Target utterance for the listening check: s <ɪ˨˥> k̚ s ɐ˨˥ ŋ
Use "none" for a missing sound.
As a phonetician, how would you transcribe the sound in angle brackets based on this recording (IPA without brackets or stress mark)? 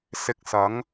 ɪ˧